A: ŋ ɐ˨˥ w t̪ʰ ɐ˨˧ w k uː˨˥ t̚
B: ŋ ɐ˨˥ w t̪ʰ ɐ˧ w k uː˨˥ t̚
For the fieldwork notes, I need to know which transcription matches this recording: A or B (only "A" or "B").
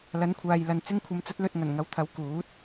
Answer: A